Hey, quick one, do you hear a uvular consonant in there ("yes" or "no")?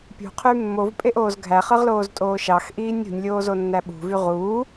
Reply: yes